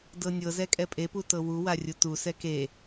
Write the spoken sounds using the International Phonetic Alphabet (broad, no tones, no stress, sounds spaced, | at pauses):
d ɤ nʲ ɤ z ɛ kʼ ɛ pʼ e p u t ɤ w u w a rʲ u t u s ɛ k e